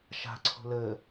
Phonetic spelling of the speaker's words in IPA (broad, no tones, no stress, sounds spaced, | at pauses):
ʃ a̤ ǀʰ o̤ l ə